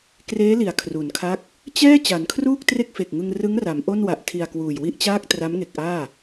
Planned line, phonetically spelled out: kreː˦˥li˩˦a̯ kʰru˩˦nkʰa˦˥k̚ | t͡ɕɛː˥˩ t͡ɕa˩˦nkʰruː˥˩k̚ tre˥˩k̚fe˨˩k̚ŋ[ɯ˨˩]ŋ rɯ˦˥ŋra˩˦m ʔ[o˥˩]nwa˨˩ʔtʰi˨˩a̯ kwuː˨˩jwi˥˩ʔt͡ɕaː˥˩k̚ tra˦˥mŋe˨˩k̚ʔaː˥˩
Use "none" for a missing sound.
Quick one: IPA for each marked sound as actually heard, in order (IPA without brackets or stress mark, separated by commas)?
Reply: ɯ˧, o˥˩